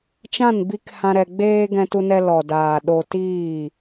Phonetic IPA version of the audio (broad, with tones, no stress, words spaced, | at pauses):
t͡ʃã˦˨nbi˧k hã˧ɾɛ˧ɡ͡beː˦ ɡɛ̃˧tu˧nɛ˧ lɔ˨daː˨ ɗo˧tiː˦˨